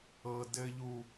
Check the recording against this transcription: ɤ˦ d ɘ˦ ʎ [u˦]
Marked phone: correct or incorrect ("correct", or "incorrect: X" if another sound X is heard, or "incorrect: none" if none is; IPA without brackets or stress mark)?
correct